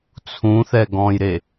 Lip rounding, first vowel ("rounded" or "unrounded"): rounded